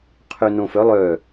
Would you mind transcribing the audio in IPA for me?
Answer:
qʰ ø n õ f œ lˠ œ

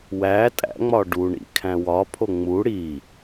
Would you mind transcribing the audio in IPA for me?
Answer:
w æ tʼ æ̰ ŋ͡m ɒ ɖ u ɳ ḭ kʰ æ̃ w ɒ pʰ o ŋ͡m u ɽ i

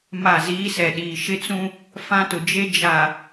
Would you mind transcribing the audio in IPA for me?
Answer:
m a˦˨ z iː˦ s ɛ˨ ɗ iː˨ ʃ ɪ˦ t͡s ũ˦ | f ã˦ t ʊ˨ d͡ʒ e˦ d͡ʒ a˨

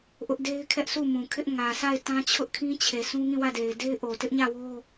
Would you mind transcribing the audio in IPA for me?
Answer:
ʔ ʊ˦ ʔ d e˦ ɪ̯ kʰ ɛ˦ ʔ sʰ u˦˨ m ũ˨ kʰ ɪ˦ ʔ ŋ ä˨ sʰ a˦˨ ɪ̯ t ã˦ t͡ɕʰ ʊ˦ ʔ kʰ ĩ˦ t͡ɕʰ e˨ s ũ˦ ŋ ĩ˦˨ w ä˦˨ d e˨ ɪ̯ d e˦ ɪ̯ ʔ o˨ t ɪ˦ ʔ ɲ ä˦˨ w o˦

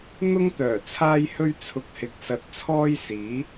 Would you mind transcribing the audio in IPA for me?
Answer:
n̪ ʊ˥ ŋ t̪ œː˨˩ t͡sʰ aː˥ j h ɵ˥ ɥ t͡sʰ ʊ˧ k̚ h ɪ˧ k̚ s ɐ˧ t̚ t͡sʰ ɔː˥ j s iː˨˥

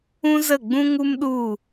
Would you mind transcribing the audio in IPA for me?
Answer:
ũ˦ z ə˦˨ ɡ͡b ũ˦ ŋ u˦ m ɗ u˦˨

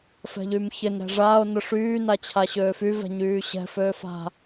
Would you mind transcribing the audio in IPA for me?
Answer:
f ɛ̤ ʎ y m ç ɪ n ɾ ɛ̤ ʐ aː o̯ n ʊ ʂ yː n a t͡ɕʰ a ɕ øː f y v ɛ̤ ɲ yː ɕ ɛ̤ f øː f a̤

